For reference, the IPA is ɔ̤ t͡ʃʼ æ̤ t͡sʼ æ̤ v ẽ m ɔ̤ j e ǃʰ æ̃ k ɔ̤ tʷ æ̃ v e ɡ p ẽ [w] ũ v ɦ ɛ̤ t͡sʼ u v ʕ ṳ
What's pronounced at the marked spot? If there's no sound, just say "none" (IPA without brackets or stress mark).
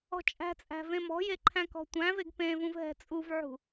v